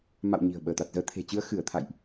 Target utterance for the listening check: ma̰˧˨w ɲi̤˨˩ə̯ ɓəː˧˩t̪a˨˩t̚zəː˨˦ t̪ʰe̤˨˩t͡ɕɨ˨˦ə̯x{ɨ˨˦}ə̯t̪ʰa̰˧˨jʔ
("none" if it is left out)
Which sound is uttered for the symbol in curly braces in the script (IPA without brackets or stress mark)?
ɨ˧˩